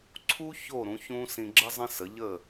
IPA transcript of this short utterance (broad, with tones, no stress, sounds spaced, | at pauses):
ǀʰ u˥ ç o˥˩ ɾ ũ˩˥ ç ũ˥ s ĩ˧ ɡ͡ǁ ə˥ zˤ ə̃˥ s ə˩˥ ʎ ə˥˩